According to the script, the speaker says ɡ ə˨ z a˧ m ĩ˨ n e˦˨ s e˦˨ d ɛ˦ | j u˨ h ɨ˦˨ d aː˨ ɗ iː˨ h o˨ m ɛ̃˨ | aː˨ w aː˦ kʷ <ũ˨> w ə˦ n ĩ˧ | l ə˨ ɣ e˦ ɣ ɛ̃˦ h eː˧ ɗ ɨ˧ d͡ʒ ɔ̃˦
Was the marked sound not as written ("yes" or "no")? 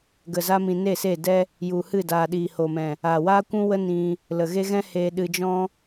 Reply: yes